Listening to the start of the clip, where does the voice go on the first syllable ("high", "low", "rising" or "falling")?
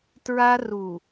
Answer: high